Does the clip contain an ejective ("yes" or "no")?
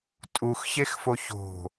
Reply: yes